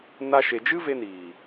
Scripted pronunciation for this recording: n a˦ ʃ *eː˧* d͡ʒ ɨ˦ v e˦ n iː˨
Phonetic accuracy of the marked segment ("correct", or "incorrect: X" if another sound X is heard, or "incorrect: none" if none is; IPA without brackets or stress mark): incorrect: e˧